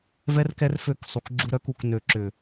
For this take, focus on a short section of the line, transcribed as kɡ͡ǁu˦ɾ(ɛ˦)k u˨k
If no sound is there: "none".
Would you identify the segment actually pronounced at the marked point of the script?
œ˦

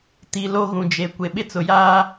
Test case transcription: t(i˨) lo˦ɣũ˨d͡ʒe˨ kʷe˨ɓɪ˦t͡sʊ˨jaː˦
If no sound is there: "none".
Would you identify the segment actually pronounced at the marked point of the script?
i˨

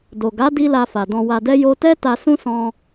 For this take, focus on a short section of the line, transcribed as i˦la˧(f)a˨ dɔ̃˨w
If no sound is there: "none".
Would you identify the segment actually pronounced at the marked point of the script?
f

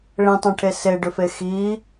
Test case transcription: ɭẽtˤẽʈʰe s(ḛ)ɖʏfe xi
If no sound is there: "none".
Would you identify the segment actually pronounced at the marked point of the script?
e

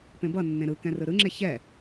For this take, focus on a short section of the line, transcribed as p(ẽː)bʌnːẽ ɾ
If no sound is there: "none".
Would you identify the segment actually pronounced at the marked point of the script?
ẽ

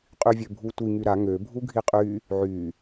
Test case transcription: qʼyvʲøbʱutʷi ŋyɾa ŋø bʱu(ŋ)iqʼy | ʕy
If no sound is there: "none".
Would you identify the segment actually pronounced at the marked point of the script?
ɡʱ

